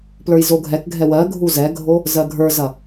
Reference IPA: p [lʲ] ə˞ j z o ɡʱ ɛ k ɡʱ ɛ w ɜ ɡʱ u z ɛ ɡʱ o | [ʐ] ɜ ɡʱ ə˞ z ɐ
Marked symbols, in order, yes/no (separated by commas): no, no